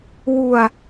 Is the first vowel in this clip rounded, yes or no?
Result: yes